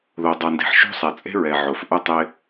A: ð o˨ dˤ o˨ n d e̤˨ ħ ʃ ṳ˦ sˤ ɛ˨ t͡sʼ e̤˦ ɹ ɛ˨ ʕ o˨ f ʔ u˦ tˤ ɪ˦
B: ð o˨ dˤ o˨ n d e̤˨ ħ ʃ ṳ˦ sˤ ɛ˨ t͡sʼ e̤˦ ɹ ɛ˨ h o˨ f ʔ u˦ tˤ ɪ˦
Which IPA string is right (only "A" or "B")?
A